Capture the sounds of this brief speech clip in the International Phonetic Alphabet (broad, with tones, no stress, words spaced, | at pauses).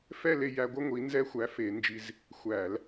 fɛ˥˧le˧jæ˧ɡʷə˥˧ ŋʷi˨˥nzɛ˥xʷæ˨˥ fe˧˩˧nd͡ʒi˧z | xʷæ˧˩˧l